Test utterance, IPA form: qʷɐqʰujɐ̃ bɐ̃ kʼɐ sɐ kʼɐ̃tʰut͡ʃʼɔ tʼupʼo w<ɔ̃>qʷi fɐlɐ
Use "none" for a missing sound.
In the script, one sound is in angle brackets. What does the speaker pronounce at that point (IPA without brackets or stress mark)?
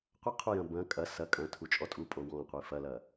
ɔ̃